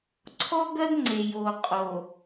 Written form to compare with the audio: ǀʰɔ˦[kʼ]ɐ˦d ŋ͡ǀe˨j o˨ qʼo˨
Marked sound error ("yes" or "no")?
yes